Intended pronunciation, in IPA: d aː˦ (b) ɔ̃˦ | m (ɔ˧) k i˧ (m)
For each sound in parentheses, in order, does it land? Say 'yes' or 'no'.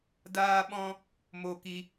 no, no, no

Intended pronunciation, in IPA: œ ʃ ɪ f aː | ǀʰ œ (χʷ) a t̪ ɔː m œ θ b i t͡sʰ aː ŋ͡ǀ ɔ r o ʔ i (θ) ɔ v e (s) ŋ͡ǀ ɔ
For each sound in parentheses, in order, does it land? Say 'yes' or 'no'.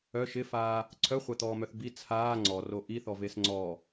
yes, yes, yes

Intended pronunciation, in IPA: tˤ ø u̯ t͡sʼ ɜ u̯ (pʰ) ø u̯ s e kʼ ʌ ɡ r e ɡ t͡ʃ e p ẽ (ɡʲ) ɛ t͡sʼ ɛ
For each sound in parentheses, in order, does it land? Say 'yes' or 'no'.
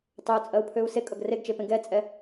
yes, no

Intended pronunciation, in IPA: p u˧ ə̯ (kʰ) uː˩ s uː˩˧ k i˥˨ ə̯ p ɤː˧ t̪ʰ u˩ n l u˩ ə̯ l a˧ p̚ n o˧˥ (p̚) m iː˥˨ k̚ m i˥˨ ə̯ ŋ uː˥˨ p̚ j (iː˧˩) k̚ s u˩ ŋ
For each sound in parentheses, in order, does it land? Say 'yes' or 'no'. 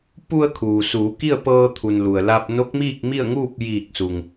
yes, no, yes

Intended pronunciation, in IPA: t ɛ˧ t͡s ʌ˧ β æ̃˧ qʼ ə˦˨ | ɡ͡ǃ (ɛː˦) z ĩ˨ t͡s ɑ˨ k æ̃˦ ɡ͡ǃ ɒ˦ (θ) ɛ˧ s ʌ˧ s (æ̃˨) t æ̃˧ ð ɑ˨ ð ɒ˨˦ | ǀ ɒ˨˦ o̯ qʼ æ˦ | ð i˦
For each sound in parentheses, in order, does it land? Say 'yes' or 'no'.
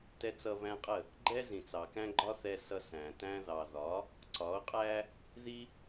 no, yes, yes

